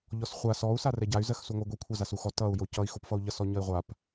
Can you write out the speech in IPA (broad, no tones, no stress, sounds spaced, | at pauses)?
ʎ ɔ s χʷ a s ɔ u̯ s a r ɛ ɟ a y̯ z ɜ x s u ŋʷ ʌ ɡʷ e kʷʰ a z a s u x ɔ t ʌ u̯ j o c ʌ i̯ x o p f ʌ u̯ ʎ ʌ s ɔ ɲ ʌ i̯ ʁʷ a p